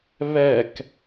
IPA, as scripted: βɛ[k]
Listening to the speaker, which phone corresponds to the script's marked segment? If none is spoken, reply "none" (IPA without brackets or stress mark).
k